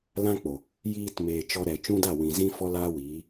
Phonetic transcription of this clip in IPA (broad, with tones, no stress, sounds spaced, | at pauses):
l ã˦ k͡p o˨ | j iː˧ t m eː˨ t͡ʃ ɔ˧ ɾ ɛ˨ t͡ʃ ũ˦ d a˦˨ w ĩ˨ z ĩ˦ f ɔ˦ l aː˦ w iː˨˦